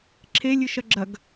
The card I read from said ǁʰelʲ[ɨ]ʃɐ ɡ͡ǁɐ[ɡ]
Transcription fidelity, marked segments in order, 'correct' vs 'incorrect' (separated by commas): correct, correct